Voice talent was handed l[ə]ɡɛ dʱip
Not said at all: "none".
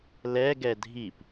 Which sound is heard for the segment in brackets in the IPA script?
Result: ɛ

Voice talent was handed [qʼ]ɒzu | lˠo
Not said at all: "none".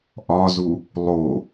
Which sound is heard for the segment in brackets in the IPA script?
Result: ʔ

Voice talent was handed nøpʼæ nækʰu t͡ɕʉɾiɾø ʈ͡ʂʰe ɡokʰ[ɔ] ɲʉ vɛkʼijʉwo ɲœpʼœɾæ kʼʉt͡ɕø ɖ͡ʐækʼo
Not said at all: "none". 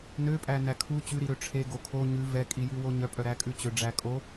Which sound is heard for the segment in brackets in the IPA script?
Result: o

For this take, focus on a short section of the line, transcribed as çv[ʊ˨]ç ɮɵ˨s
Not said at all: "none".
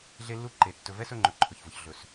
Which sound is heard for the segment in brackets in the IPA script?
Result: ʊ˨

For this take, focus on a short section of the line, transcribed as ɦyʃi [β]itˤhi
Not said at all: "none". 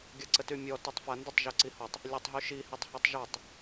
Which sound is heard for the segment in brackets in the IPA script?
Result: h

